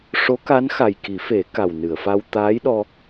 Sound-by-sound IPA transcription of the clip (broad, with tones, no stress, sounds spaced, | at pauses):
ʂ o˧˥ k a˧˥ n x a˨˩ j k i˨˩˦ f e˨˩˦ k a˨˩ w n ɨ˨˩˨ ə̯ f a˧ w t̪ aː˧˥ j ɗ ɔ˧